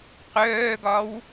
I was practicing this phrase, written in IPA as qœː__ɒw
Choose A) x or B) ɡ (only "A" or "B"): B